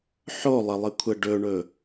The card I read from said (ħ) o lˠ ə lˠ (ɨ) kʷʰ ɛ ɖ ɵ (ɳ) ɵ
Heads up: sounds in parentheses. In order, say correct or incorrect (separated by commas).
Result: correct, correct, correct